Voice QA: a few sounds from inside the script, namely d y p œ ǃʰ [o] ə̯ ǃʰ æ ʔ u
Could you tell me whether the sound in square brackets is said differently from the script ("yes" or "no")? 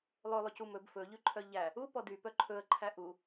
yes